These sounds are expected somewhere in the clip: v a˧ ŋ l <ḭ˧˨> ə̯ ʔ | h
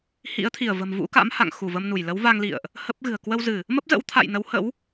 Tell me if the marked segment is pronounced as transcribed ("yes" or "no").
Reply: yes